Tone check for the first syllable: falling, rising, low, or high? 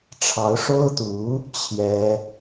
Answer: rising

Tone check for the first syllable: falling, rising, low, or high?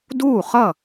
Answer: falling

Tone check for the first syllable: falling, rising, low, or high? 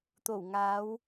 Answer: low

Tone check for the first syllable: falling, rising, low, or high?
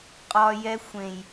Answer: high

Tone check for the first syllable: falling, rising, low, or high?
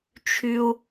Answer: low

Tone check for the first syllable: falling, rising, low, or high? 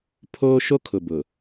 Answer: high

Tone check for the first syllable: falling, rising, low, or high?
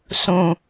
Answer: low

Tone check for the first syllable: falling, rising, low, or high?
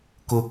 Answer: high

